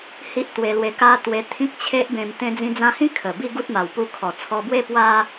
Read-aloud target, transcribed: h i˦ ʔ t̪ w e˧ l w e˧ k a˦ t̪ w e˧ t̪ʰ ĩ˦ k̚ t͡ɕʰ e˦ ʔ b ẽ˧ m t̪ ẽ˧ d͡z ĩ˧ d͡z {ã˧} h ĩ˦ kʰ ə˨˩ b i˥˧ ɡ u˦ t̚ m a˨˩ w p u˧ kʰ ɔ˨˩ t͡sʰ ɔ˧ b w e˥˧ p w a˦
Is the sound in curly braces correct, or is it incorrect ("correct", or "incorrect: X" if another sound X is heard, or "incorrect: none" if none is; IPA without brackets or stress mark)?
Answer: correct